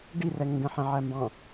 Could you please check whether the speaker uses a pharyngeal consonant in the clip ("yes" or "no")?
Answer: yes